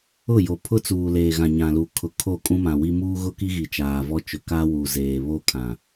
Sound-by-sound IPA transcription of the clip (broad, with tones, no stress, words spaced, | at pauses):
ʊ˦˨jo˨ pʰʊ˦t͡suː˨leː˨ ɣã˨ɲã˨lu˨ kʰʊ˨kʰo˦˨ kʼũ˦mã˨wi˦ muː˦ɣʊ˦ki˦ɣi˨ t͡ʃaː˨vɔ˦ t͡ʃʊ˨kaː˦wu˨ zeː˨ βo˦ kʰã˨